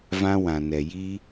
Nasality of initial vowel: nasal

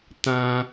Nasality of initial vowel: nasal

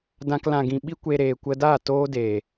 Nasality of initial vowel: nasal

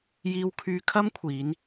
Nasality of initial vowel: oral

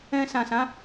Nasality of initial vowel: nasal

